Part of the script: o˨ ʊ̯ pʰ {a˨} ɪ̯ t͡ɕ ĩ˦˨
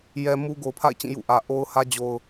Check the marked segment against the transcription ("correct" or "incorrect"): incorrect